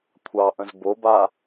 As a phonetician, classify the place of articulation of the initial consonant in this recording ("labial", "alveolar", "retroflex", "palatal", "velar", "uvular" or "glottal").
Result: velar